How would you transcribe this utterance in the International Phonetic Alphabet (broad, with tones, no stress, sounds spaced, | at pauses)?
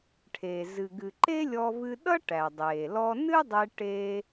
ʈʰ e˩ z ɨ˩ ɡ ɨ˩ ǃ e˥ lʲ ɔ˧ v ɨ˧ ɗ ʌ˥ ʈ æ˩ dˤ eː˩ l ɔ˧ n ɨ˥ dˤ e˧ ʈ eː˧